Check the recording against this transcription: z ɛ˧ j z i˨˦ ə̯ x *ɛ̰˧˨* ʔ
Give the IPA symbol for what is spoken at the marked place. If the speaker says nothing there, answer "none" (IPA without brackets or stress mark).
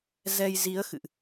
ɨ̰˧˨